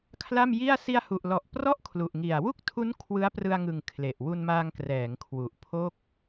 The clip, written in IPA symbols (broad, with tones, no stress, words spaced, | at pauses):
kʰla˥˩mji˥˩a̯ si˧a̯hu˨˩ʔlɔ˨˩ʔ prɔ˥˩ʔkʰlu˨˩ʔŋi˨˩a̯ wu˥˩k̚tʰu˦˥n kʰwɯ˦˥a̯prɯ˧a̯ŋɯ˨˩ŋ kʰle˨˩ʔ wu˧nmaː˧ŋkrɛː˩˦ŋ kʰwu˨˩ʔpʰo˥˩k̚